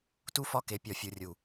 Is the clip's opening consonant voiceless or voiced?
voiceless